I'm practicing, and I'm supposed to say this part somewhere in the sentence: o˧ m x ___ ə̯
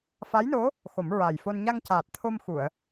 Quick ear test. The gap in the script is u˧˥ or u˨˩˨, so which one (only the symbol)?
u˨˩˨